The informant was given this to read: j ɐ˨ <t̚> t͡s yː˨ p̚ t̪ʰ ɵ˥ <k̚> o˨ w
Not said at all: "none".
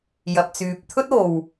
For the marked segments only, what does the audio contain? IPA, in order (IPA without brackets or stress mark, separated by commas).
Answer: p̚, t̚